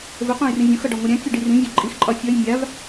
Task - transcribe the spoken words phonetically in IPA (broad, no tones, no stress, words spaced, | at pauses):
vəqʷãj rĩvʲõxʌ ɖɒŋʷʌɾʲãkʲo ɖirĩvʲɒ ǃʼixǃʼɒ fʲʌj mʲav